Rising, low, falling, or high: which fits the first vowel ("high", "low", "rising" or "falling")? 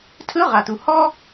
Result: rising